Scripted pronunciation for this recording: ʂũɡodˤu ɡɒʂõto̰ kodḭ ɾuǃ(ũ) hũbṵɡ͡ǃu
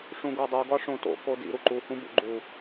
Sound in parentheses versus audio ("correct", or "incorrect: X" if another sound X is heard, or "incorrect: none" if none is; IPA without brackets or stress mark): incorrect: u